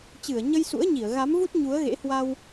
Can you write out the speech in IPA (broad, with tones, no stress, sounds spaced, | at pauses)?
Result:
t͡ɕ ɨ˧˩ ə̯ ɲ ə˧ j s ṵ˧˥ ə̯ ɲ i˧˩ ə̯ ɣ a˨˦ m v u˦˥ t̚ ɲ u˨˦ ə̯ ɣ ḛ˧˥ h w a˧ w